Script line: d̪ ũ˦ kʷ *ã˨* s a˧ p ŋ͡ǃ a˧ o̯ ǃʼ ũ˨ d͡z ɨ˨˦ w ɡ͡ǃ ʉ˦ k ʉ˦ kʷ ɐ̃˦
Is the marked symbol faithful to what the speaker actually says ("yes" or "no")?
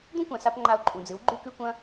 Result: yes